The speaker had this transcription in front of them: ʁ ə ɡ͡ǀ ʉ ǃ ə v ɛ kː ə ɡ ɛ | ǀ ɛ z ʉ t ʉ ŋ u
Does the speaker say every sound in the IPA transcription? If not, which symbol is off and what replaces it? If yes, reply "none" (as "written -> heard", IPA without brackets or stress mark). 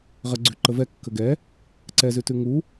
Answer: none